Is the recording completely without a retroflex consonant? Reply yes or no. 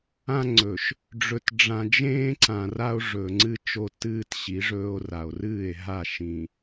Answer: no